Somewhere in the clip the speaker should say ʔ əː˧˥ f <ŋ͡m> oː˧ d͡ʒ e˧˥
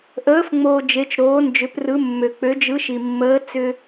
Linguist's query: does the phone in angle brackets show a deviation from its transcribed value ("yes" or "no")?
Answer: no